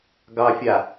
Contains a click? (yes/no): no